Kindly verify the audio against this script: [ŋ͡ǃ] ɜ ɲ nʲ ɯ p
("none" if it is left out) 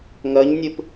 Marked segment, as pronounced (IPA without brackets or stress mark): ŋ